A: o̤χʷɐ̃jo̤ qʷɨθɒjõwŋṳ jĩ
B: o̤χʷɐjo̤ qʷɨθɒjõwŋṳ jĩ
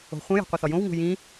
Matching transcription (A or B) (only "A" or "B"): A